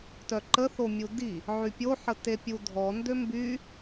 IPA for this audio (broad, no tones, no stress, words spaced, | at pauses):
tœǃəθo mʲudi | ʕypʲoħə tepʲudʱɔ ndømby